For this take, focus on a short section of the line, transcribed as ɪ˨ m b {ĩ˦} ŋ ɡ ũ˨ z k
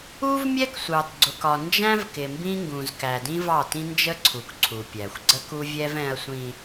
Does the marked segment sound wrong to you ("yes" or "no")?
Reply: no